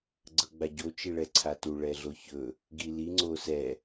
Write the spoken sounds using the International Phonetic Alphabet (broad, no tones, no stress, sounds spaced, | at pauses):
ɡ͡ǀ ɤ ɡ͡b a ɟ o t͡ʃ i ɭ ɛ ǀʰ a t u ɭ ɛ ɮ o ç ɵ | ɡ i l i ŋ͡ǀ o s ɛ